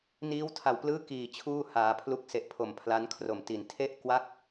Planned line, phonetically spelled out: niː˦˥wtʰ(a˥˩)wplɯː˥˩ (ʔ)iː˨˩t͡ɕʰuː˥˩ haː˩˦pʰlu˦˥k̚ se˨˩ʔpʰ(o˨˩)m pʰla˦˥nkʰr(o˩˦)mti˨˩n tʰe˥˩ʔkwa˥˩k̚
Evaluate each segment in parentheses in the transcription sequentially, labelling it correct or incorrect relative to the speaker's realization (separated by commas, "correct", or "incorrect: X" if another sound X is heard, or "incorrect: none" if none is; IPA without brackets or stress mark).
incorrect: a˨˩, incorrect: k, correct, incorrect: o˨˩